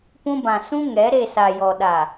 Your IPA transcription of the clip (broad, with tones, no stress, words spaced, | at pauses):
pũ˦bã˨ sũ˦ŋɛ˨˦ ɾe˦˨sa˨jɔ˨ ɗa˨